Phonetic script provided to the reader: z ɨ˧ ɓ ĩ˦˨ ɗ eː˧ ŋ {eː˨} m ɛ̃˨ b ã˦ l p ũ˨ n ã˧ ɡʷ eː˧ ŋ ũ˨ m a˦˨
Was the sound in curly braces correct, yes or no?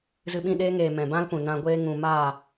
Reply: yes